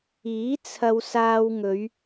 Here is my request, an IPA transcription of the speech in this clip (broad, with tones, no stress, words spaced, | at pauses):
iː˨˥ t͡sʰɐ˧wsaː˧wŋɵ˨˧ɥ